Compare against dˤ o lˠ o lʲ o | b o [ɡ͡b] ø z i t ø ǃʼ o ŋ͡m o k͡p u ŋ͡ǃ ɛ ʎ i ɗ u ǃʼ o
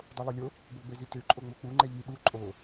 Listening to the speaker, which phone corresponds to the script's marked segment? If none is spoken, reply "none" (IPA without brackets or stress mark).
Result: ɡ͡b